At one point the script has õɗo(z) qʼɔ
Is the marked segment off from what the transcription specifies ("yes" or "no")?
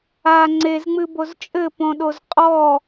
no